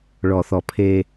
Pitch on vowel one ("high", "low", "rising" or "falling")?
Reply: low